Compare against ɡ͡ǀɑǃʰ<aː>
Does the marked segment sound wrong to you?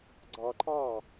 yes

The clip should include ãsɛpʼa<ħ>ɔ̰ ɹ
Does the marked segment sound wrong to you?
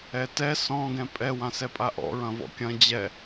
yes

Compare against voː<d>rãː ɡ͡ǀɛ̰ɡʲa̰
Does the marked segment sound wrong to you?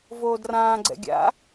no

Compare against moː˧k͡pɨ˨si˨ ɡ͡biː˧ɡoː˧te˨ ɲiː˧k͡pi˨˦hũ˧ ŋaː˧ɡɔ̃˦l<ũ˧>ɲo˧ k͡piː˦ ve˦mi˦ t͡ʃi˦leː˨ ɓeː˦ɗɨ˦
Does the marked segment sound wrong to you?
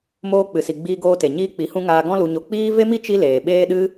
yes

